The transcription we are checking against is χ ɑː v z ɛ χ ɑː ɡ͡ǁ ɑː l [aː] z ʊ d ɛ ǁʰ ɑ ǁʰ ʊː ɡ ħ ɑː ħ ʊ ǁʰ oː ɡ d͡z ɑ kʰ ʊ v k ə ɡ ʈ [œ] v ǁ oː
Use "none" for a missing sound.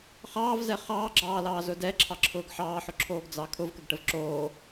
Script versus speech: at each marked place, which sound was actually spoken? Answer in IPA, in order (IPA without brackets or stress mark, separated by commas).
ɑː, ə